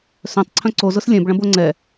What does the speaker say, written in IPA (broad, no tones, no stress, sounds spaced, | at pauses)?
s œ̃ tˤ ǀʰ œ̃ ǀ o z ʊ s lʲ ɛ̃ b ɭ ɐ̃ b o ŋ͡ǀ ɛ